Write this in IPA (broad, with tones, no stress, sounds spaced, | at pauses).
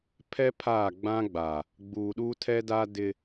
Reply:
pʰ ɛ˦ pʰ aː˦˨ ɡ͡b ã˦ ɡ͡b a˨ | ɡ͡b uː˨ ɗ uː˦ tʰ ɛ˦ d a˦ d ɪ˦